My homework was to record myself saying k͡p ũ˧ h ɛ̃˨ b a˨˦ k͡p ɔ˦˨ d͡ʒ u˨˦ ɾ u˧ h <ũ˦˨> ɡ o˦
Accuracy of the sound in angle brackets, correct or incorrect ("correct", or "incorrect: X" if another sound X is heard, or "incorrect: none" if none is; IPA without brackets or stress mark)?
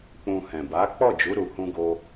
incorrect: ũ˦